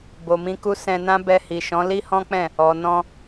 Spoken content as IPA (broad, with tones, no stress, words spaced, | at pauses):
bo˨mĩ˧ku˦ sɛ̃˧nã˦ bɛ˧hi˨ʃɔ̃˨˦ li˦hɔ̃˦k͡pɛ̃˦˨ | ɔ˨nɔ̃˧